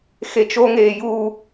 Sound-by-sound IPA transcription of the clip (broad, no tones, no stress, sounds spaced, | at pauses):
x e t͡ʃ o ŋ eː j uː